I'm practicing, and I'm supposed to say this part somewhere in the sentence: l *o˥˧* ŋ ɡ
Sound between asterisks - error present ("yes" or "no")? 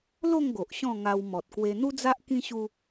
no